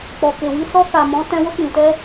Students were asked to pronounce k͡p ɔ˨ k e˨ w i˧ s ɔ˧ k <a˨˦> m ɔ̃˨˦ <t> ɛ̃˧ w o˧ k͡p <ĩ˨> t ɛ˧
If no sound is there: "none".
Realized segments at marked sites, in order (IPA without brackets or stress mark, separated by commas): a˨, t, ĩ˨